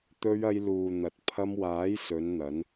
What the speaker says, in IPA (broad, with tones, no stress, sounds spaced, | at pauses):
t̪ ɵ˧ ɥ ɐ˧ j l uː˨ n̪ ɐ˨ t̚ pʰ ɐ˧ m w aː˨˥ j s ɵ˨˧ n n̪ ɐ˨˧ n